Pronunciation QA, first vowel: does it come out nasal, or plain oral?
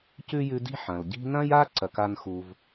oral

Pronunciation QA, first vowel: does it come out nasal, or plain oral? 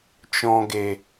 nasal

